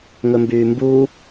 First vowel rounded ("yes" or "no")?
yes